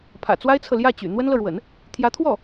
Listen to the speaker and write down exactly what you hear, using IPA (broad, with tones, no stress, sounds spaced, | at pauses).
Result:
pʰ ä̰˨˩ t͡s w a˥ ɪ̯ t͡sʰ ɤ˨ l j ä˥˩ t͡ɕ y̰˨˩ n̪ w ə˥ n l ɤ˨ ɻ w ə̰˨˩˦ n | t̪ʰ j ä˧˥ t̪ʰ w ɔ˥˩